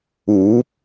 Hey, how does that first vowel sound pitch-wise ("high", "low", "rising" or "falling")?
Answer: rising